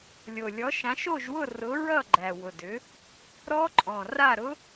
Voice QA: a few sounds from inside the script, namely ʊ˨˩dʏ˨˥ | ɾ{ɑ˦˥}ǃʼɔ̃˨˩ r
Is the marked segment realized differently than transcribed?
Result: yes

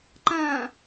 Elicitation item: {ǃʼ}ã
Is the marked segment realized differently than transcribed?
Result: yes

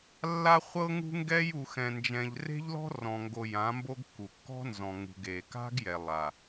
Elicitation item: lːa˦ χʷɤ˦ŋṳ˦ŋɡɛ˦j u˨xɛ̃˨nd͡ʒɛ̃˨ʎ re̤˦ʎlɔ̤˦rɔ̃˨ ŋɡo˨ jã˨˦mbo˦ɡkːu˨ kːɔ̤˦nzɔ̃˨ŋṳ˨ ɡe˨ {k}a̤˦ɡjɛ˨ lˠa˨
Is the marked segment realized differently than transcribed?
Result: no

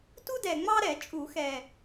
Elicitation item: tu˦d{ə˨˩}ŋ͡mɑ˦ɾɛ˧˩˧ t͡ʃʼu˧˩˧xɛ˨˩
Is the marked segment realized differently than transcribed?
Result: yes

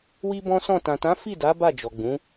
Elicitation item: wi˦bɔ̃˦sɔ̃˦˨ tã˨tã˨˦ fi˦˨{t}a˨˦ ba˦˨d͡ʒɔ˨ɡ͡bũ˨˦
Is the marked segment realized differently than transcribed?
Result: yes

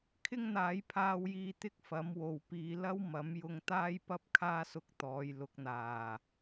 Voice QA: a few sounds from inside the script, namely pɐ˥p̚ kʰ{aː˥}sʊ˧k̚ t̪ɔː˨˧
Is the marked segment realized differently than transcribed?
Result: no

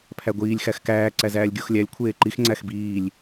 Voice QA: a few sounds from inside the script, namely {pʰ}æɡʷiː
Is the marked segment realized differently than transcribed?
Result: no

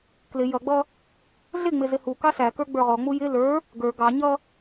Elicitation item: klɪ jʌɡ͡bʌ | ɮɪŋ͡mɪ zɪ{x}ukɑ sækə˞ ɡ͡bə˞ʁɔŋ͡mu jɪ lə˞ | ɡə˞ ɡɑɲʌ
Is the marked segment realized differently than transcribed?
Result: yes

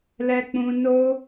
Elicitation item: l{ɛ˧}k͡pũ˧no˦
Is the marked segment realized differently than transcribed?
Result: no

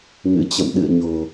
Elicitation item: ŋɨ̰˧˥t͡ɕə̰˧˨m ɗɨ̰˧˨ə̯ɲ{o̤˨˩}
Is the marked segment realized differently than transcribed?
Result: no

